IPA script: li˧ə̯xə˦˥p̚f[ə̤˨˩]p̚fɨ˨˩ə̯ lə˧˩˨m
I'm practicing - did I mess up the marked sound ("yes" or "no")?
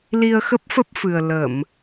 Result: yes